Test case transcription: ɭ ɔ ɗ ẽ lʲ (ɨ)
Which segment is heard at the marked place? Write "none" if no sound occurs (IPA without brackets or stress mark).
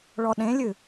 ɨ